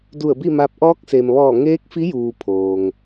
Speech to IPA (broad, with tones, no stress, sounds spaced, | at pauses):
d u˧˩ ə̯ b i˥˨ m a˧˥ p̚ ʔ ɔː˧˥ k̚ s e˩ m ʋ ɔː˧˩ ŋ eː˧˥ k̚ f i˧˥ j uː˩ pʰ oː˩ ŋ